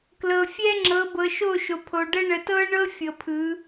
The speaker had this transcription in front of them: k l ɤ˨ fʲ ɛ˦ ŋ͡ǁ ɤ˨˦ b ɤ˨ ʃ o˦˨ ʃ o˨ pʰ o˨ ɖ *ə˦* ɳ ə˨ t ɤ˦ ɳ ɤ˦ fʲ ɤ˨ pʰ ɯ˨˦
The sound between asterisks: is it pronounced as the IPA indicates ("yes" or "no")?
yes